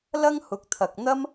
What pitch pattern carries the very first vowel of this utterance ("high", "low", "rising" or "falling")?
high